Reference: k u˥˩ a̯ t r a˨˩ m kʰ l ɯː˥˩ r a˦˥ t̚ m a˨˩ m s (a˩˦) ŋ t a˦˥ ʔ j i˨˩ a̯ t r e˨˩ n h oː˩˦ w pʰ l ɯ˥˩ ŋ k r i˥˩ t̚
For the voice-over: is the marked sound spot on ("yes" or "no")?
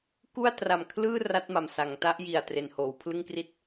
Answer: yes